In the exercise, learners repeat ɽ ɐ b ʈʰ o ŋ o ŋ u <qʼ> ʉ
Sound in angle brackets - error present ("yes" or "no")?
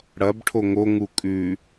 yes